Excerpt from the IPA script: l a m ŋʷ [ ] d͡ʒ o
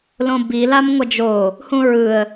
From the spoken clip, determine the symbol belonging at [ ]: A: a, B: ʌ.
B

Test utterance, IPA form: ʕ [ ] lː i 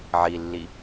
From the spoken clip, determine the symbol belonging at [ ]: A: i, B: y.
A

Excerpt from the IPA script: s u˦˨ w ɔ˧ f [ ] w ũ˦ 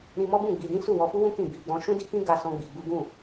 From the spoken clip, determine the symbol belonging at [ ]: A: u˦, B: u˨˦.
A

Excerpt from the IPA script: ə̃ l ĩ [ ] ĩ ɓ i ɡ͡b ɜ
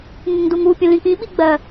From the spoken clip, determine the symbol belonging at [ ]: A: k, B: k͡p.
A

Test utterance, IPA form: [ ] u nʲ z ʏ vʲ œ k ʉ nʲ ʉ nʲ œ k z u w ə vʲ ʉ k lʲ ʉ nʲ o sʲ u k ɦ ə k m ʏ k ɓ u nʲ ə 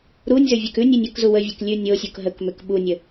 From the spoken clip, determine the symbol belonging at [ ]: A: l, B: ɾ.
B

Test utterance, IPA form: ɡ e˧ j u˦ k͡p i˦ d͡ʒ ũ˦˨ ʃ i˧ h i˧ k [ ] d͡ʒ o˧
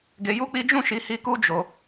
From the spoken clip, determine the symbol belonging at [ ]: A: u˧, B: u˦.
B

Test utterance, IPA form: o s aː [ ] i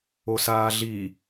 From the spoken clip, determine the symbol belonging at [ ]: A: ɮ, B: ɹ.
A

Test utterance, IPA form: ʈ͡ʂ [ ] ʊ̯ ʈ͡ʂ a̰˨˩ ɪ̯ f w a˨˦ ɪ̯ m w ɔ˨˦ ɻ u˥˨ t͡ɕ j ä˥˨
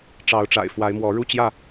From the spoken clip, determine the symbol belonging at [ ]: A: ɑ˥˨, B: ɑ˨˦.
B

